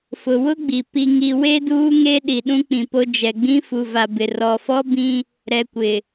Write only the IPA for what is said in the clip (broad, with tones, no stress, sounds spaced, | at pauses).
f ʊ˨ w ʊ˦ ɡ͡b i˨ p i˨ ŋ i˨ w e˦ d uː˦ ŋ e˦ ɗ i˨ ɗ ũ˦ k͡p ĩ˨ p o˦ d͡ʒ ɛ˨ ɡ͡b ĩ˦ f u˨ v a˨ b ɪ˨ r ɔ˨ f ɔ˦ b ĩ˦ | ɾ ɛ˨ kʷ ɪ˨